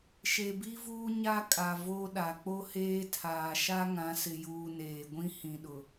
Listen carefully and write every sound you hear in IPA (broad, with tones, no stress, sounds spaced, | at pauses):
ʃ e˨ b i˦ v uː˦ ɲ a˦ kʼ a˨ v o˦ ɗ a˨ k͡p o˦ h eː˦ tʰ aː˨ ʃ a˦ ŋ ã˨˦ s ɪ˨ j uː˨ n eː˨ ɡʷ ĩ˦ h ĩ˨ ɗ ʊ˨